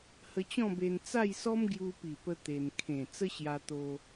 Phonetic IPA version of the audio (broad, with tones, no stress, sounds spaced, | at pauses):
h ə˧ t͡ɕ ɔ̃˥˧ b e˧ n t͡s a˥˧ j s ɔ˦ m ɡ j u˧ p i˨˩ p ə˧ t̪ e˧ n kʰ ẽ˨˩ t͡s ə˦ ɕ j a˧ t̪ o˧